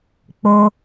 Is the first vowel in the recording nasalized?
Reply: no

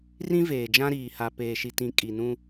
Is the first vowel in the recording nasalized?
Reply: yes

